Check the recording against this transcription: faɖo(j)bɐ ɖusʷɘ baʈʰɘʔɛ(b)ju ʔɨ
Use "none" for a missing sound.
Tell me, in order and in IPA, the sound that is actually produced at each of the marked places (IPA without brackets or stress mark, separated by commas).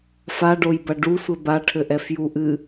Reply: j, f